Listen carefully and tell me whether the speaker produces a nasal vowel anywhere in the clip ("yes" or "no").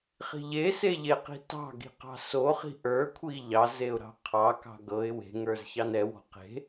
no